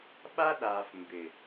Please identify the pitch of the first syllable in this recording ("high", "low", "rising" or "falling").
high